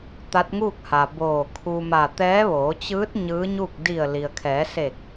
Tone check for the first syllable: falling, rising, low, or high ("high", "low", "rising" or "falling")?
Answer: rising